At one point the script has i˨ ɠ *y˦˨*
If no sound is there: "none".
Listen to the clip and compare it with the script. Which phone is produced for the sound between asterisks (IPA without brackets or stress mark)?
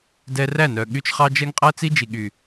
y˨